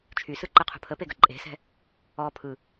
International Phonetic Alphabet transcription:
t͡ʃʰ y s ɯ ǃ ə qʰ ṳ pʰ ə p e ɡ ə ǃʼ e̤ s ɛ̤ | ɔ pʰ ɯ

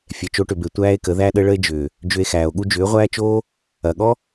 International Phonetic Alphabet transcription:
fʲ ɛ˨ t͡ʃ o˧ ʈ ʏ˨ b e˨ tʷ æː˦ e̯ k ə˨˦ ð æ˦ ɗ ə˦ ɭ ə˦ e̯ d͡ʒ ʏː˨ | d͡ʒ ʏ˧ e̯ x æː˨ o̯ ɠ u˦ d͡ʒ ʏː˨˦ ʁʷ æː˦ t͡ʃ oː˦ | ɐ˨ ɠ ɔ˦

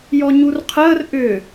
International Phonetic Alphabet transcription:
j ɔ ɲ u r qʰ əː r ʔ ʏ

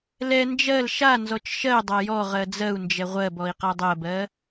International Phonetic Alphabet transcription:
l ɛ n d͡ʒ ɜ l ʃ a n z ɔ t͡ʃ ʃ ɜ dˤ a j ɔ ʁ ɜ d͡z ɜ u̯ n d͡ʒ ɛ ʁʷ ɜ b ɔ i̯ q a dˤ ɜ b ɜ

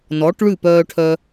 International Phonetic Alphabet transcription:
n ɔ˩˥ ʈ ɭ ʉ˥˩ p œː˧ ʈʰ œ˧

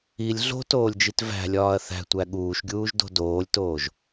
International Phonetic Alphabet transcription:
i lʲ ɮ o̤ t oː lʲ d͡ʒ i t v æ̤ lʲ ɒː ɐ̯ θ æ̤ tʷ æ ɠ uː ʃ ɡʲ uː ʒ d o̤ d oː lʲ t oː ʒ

